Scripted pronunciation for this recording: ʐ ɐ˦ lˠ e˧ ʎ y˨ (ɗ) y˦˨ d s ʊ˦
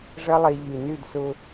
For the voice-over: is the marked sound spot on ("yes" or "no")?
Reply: no